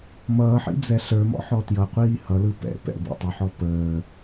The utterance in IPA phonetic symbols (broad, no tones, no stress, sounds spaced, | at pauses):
m ʌː ħ ḭ d͡z ɛ ɬ ə˞ m ɔ̰ ħ ɔ t j ʌ qʷ iː h ʌ l ɯ p ɛ̰ p ɛ̰ b ḭ tˤ ə ħ ɔ p əː